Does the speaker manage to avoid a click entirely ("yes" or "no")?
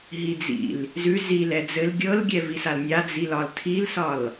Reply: yes